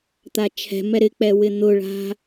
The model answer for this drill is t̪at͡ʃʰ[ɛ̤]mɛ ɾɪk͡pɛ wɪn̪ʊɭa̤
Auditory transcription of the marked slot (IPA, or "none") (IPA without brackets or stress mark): ɛ̤